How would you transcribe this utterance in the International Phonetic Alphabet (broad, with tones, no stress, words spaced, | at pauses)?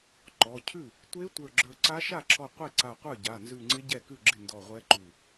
ǃɔ˩˧˩ cʰʉ˥˩ | tʷe˧˥ tʷə˞˧˩ɡ͡ǁə˞˧˩ ǀa˧˥ʃa˥˩ǁʰɔ˧˩ qʷe˥˩ǀa˧˩qʷə˞˥˩ ɟa˩˧˩nzʉ˧˩ŋ͡ǀɪ˧˥ ɟɛ˥˩kʉ˥˩ɡ͡ǁɪ˥˩ ndɔ˧˩ʁʷɛ˧˥ǃʉ˧˩